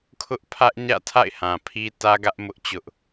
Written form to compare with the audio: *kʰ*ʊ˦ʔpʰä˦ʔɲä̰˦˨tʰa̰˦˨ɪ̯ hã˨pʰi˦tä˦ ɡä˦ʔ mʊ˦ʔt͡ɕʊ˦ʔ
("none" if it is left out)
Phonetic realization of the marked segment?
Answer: kʰ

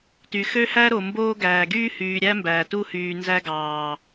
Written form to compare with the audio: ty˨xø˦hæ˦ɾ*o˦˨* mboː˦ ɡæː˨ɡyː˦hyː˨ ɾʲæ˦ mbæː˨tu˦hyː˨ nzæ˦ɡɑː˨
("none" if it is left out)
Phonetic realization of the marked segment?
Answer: o˨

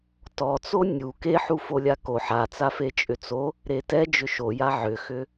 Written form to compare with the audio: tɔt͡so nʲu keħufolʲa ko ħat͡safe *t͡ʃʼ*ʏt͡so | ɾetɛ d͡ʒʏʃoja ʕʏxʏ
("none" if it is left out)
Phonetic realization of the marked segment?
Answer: t͡ʃʼ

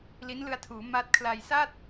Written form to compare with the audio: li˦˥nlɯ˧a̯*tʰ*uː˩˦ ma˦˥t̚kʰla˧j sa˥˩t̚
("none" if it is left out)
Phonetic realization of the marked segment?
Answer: tʰ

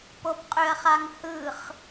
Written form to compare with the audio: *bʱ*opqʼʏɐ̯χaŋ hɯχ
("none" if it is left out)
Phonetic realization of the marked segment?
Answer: p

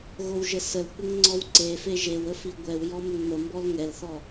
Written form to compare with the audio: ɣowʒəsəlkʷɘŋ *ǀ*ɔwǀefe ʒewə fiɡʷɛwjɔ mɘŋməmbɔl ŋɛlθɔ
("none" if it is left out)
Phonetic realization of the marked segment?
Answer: ŋ͡ǀ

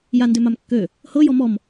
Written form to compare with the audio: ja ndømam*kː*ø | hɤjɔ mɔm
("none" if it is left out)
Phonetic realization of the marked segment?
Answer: kː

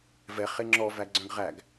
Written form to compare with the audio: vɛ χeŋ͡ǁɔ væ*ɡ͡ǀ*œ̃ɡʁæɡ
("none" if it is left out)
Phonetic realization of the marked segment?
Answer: ɡ͡ǀ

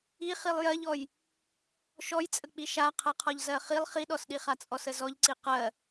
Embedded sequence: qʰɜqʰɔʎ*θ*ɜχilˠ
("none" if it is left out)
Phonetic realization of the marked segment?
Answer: z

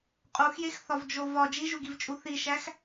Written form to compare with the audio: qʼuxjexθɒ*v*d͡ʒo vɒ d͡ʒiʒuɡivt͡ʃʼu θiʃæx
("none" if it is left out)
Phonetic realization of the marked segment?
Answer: v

